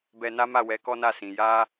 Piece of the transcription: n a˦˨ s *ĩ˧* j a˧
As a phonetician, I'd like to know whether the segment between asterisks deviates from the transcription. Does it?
yes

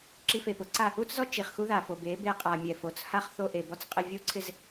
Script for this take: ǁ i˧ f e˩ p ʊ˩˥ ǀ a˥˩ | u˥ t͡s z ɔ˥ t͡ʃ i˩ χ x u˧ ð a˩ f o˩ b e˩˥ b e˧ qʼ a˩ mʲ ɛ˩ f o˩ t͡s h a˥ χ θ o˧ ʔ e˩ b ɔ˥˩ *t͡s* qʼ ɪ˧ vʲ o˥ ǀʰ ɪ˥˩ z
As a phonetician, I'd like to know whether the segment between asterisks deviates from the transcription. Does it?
no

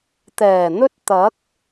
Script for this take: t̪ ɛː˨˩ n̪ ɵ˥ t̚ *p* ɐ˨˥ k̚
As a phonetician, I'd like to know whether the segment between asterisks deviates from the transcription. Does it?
yes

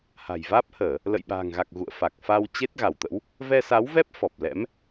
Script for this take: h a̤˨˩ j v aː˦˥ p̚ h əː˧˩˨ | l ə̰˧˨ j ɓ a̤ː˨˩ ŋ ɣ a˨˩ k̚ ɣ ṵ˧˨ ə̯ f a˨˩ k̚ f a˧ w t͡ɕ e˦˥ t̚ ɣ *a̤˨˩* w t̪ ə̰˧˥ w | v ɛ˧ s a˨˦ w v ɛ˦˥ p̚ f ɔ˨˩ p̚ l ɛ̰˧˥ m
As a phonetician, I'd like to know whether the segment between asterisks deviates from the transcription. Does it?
yes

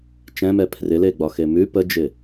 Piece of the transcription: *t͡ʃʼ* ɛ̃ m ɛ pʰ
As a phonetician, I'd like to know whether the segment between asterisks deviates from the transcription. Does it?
yes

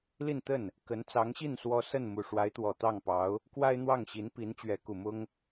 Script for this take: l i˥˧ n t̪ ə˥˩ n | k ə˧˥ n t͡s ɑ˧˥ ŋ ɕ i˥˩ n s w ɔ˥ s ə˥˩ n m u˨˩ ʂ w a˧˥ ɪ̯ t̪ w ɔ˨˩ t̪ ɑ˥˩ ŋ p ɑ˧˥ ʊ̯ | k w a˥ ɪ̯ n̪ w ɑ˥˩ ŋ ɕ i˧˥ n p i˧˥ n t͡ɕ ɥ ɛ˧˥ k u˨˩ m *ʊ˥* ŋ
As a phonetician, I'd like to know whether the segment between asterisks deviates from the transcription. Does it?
no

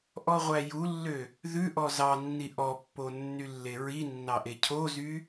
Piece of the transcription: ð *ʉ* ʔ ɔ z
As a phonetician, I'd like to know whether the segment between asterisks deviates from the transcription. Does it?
no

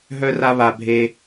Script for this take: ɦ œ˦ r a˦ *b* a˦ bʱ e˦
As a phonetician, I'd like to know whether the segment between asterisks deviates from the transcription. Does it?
yes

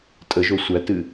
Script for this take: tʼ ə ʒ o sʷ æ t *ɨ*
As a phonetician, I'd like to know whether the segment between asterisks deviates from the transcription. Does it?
no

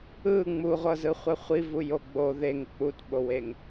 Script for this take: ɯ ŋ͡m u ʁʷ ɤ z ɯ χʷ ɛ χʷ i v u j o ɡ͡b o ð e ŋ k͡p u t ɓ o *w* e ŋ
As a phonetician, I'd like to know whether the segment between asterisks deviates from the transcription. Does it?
no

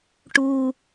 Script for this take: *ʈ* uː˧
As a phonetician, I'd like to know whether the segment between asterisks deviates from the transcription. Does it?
no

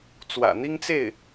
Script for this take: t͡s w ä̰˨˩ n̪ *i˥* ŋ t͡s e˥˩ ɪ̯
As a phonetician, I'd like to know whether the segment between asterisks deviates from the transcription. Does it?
no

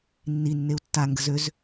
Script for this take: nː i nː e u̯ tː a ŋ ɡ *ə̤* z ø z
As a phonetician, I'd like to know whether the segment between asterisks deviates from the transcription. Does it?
no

